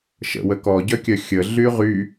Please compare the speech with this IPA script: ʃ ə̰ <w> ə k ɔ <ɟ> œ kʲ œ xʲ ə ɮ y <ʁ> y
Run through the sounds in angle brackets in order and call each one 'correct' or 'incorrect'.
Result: correct, correct, correct

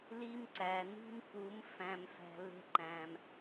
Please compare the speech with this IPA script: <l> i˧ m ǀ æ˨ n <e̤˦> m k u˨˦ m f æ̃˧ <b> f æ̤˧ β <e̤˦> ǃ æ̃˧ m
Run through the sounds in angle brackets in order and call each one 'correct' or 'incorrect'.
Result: correct, incorrect, incorrect, correct

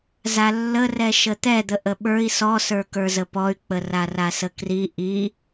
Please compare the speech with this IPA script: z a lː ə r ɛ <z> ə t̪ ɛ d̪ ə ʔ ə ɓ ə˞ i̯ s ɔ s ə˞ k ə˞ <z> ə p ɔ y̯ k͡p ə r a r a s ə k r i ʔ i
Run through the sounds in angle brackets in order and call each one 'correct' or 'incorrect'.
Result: incorrect, correct

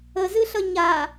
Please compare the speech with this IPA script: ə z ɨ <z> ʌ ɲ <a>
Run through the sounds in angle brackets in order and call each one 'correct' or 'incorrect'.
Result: incorrect, correct

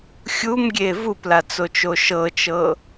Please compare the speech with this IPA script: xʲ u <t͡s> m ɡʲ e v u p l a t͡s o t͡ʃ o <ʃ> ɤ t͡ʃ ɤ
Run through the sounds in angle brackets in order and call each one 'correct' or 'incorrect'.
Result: incorrect, correct

